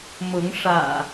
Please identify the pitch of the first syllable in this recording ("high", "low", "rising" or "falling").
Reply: rising